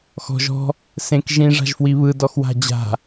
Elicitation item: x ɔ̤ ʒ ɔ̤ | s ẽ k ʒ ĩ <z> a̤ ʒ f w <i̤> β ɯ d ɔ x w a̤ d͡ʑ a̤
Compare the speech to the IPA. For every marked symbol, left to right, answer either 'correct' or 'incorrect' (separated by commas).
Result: incorrect, incorrect